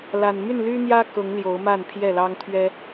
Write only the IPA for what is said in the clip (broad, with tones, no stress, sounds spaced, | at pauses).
l a˨˩ n m y˥˨ n l y˦ n̪ j ä˦ k ʊ˨˦ ŋ l j o˨˦ ʊ̯ m a˥˨ n pʰ j ɛ˥˨ l ɑ˦ ŋ t̪ʰ ɥ ɛ˦